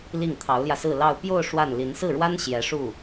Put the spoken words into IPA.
li˥˩ŋt̪ʰɑ˧˥ʊ̯ljä˧sɹ̩˥˧ lɑ˥˧ʊ̯ pjo˥˧ʊ̯ ʂwa˥˩nli˧˥n sɹ̩˥˩ɻwa˥n ɕjɛ˧˥ʂu˥˩

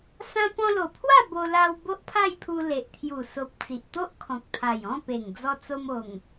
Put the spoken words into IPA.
sã˧pɔ̃˧lo˨˩pʰwa˥˧ bo˧ la˧w bo˦ʔpʰa˥˧jpʰu˧ le˨ʔt̪ʰju˨˩so˨p̚ t͡si˨ʔt̪o˦ʔkʰɔ̃˨k̚t̪ʰa˨˩j ɔ̃˥˧pe˨˩ŋ d͡zɔ˧t͡so˧mo˨˩ŋ

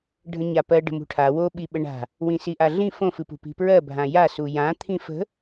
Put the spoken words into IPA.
ɖʱə̃ɲapɜ ɖə̤mṳʈʰa woɓi ɓəɳa̤ | wĩsiʔaɮĩ fõfɨpṳ pi̤pɹɜbʱã ja sujã t̪ʰĩfə̤

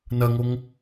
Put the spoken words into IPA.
nɐŋoŋ

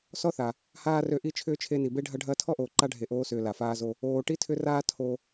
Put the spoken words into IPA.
sɔ˥θa˩ | haː˥rø˦ʔi˥ t͡ʃʰʏː˥t͡ʃʰe˦ni˨ be˦ɖʱɐ˦ ɖʱɐː˦tʰɔ˥ʔoː˨ ǃa˥ ɖʱe˨ʔoː˦sʏː˨ la˩faː˦zo˦ | oː˨ ʈi˥tʰʏ˦raː˦ tʰo˨

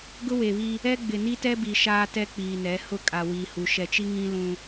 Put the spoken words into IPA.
ɡʊ˦we˨βi˦ | ɛ˦ ɡ͡bɪ˨ni˦tɛ˦bi˨ ʃaː˦tɛ˦k͡piː˨nɛ˨˦ hʊ˦ kʼa˨wi˨hu˨ ʃɛ˨t͡ʃi˦ŋĩ˦ lũ˦

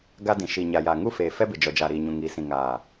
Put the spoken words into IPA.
ɡa˦dĩ˨ ʃi˨ɲa˨ja˨ ŋu˦feː˨fɛ˦bɪ˨ d͡ʒɔ˨d͡ʒa˨ɾiː˨ ɲũ˨ŋiː˨sĩ˨ ŋaː˨

